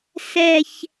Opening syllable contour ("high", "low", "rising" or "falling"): falling